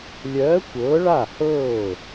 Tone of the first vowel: rising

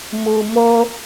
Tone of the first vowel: low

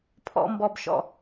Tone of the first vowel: high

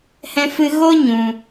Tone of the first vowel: high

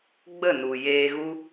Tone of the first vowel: falling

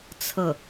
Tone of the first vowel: falling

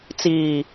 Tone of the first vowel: low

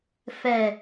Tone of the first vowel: low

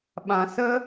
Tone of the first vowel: low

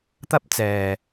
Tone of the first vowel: high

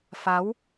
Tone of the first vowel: rising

